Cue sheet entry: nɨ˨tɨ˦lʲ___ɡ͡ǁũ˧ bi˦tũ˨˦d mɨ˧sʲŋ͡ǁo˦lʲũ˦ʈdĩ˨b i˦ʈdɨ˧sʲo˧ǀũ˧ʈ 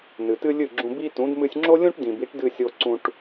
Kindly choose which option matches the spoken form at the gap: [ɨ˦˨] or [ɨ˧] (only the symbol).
ɨ˦˨